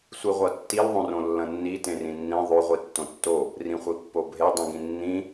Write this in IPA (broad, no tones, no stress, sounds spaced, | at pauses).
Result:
sʷ i ʁʷ ɐ tː i l ðˤ õ r õ lː ɐ̃ nː i t ẽ r ĩ nː ĩ ðˤ o ʁʷ i tː õ tː o | r ĩ χʷ i pː o bʱ e dˤ ĩ ɡ ĩ nː ĩ